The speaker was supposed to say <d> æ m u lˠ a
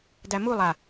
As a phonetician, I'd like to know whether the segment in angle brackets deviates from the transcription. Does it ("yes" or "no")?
no